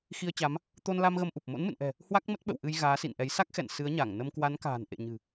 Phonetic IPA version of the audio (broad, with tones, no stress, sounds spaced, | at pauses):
x i˧ ə̯ t͡ɕ a˨˦ m | t̪ o˧ n l a˧ m ɣ ə˧ m ʔ u˨˩ p̚ m o̰˧˥ n m ɨ̰˧˨ n ʔ ɛ̤˨˩ | h w a˦˥ k̚ m ə˦˥ t̚ ɓ ə̰˧˨ w ʔ ɨ˧ j ɣ aː˨˦ s ḭ˧˨ n ʔ ɛ˨˦ j s a˦˥ k̚ x ɛ̰˧˨ n s ɨ˨˦ ə̯ ɲ a˧˩ ŋ n ə˧ m k w a˨˦ n k a̤ː˨˩ n ʔ ḛ˧˨ ɲ ɨ̤˨˩